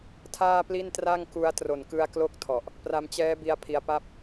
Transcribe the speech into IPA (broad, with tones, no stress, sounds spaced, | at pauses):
tʰ aː˥˩ p l i˥˩ n t r a˥˩ ŋ k u˦˥ a̯ t r o˨˩ n k ɯ˧ a̯ k l o˦˥ k̚ tʰ ɔ˨˩ ʔ | p r a˧ m t͡ɕ ɛː˦˥ b i˧ a̯ pʰ i˧ a̯ p a˥˩ p̚